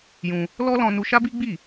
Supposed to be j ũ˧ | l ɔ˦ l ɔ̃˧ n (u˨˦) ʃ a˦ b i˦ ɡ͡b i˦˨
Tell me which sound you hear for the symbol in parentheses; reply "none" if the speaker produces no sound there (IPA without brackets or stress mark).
u˧